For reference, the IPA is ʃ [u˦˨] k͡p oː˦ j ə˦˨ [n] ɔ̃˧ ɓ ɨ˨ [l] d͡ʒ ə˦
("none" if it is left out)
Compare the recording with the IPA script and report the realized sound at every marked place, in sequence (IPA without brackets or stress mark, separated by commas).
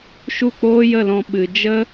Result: u˦˨, l, none